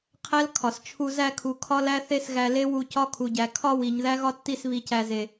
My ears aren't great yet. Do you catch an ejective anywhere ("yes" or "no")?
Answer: no